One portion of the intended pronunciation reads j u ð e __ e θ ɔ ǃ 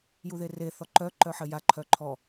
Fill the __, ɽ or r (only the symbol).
r